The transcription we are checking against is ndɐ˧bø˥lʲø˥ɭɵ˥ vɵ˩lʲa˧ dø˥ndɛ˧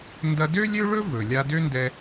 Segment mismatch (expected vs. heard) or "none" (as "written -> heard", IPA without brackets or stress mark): b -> d